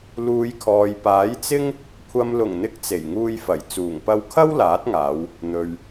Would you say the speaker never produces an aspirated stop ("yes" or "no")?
no